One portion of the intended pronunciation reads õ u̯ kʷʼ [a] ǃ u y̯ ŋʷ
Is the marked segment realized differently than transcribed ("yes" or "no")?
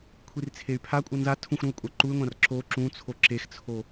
no